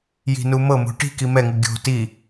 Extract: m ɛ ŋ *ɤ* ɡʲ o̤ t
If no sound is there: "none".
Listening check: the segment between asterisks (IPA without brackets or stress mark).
ɯ